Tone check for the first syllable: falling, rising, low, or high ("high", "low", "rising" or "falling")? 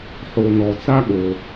low